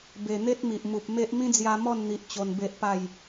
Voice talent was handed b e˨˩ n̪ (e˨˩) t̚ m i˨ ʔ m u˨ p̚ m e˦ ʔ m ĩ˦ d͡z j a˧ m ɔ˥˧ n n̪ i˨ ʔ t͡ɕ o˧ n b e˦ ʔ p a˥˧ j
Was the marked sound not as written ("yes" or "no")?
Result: yes